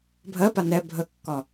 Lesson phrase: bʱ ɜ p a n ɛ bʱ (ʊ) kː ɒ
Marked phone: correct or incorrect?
incorrect: ə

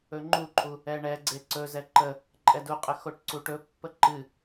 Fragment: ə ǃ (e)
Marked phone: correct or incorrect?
incorrect: ɨ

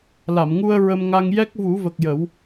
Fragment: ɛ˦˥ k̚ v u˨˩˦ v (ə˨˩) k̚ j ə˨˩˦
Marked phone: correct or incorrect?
correct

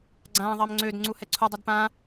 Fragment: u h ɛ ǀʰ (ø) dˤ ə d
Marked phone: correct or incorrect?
incorrect: u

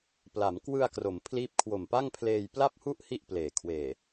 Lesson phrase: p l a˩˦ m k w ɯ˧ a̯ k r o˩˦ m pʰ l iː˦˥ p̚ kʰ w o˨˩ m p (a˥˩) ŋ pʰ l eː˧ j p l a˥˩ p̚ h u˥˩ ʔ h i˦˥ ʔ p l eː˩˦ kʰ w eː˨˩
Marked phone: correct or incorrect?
correct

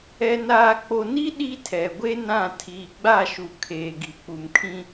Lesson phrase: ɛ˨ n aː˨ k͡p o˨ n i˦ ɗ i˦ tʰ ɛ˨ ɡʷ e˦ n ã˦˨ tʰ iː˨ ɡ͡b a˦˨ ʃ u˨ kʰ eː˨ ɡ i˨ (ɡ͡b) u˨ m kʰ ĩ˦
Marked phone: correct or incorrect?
incorrect: k͡p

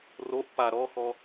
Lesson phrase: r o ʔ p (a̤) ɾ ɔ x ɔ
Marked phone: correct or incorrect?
incorrect: a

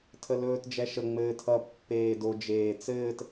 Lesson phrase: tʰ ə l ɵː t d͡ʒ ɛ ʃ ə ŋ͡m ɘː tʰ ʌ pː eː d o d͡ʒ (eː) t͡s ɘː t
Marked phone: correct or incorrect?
correct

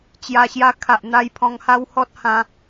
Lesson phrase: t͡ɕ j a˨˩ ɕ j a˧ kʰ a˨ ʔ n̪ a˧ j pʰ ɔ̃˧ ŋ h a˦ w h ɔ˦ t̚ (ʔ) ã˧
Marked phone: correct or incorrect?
incorrect: h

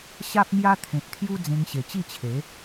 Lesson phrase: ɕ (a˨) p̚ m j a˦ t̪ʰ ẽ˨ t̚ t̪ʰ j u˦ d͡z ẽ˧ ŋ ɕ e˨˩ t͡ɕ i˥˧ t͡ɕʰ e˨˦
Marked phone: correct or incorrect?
incorrect: a˦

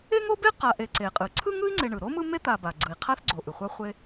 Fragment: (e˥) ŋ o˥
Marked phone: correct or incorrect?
correct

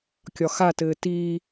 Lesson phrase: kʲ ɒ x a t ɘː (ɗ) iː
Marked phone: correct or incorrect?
incorrect: t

